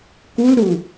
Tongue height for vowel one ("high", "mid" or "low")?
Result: high